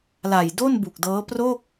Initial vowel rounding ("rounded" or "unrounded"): unrounded